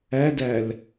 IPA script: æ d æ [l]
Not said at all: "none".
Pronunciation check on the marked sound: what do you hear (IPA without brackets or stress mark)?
l